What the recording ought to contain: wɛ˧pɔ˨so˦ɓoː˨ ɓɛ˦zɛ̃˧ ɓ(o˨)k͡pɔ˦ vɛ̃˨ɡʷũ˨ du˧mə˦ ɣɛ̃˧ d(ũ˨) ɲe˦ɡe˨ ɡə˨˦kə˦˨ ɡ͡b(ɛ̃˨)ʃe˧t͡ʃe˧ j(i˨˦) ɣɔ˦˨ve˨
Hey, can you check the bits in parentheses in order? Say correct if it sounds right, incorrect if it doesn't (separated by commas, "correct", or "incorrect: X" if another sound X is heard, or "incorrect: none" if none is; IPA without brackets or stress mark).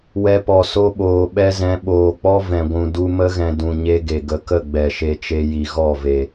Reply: incorrect: oː˨, correct, incorrect: ɛ˨, incorrect: i˨